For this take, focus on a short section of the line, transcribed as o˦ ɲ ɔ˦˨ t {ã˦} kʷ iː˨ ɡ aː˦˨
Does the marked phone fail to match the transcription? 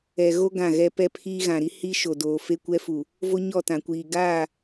yes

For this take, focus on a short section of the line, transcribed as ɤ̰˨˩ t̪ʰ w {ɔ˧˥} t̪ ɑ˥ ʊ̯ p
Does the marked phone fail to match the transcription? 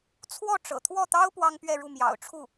yes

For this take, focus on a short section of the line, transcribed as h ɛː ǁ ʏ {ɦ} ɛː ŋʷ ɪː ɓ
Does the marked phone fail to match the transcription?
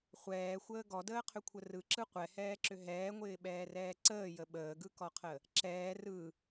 no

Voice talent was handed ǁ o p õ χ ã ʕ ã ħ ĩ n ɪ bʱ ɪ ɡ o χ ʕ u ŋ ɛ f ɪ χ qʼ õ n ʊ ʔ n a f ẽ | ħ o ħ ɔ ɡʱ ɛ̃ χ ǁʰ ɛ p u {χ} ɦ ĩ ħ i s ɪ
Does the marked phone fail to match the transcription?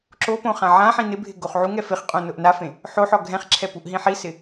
yes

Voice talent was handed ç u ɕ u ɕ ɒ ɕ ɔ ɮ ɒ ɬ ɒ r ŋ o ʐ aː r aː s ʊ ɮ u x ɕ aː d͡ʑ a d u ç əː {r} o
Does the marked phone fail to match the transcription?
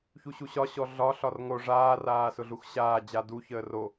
no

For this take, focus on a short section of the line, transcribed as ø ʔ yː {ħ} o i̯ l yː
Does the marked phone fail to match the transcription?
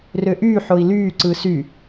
no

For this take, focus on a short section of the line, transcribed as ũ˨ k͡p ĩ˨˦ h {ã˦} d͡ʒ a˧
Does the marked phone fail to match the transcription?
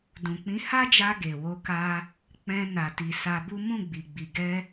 yes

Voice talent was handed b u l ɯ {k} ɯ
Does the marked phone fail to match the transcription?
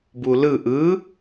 yes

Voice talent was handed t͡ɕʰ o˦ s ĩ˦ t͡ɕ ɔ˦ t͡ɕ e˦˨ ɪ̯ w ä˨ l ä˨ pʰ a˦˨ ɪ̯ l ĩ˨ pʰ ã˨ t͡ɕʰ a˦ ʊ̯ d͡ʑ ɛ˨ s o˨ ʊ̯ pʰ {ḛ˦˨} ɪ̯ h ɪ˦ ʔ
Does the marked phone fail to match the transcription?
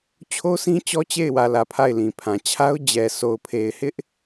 yes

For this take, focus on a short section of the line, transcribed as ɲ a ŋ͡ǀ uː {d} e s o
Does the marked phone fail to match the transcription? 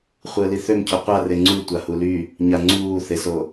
yes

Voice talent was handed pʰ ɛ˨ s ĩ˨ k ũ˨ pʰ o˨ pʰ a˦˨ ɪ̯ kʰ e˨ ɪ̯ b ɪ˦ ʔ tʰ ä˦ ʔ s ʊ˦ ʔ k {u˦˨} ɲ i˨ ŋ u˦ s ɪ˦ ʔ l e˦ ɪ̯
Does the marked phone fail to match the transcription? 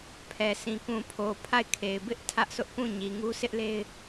yes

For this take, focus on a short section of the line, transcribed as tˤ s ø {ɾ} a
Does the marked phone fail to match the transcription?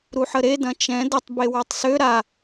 no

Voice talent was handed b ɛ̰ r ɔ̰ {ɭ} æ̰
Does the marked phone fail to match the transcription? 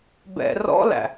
yes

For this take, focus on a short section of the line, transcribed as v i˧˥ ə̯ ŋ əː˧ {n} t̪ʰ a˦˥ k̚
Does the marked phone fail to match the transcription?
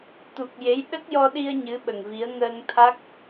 yes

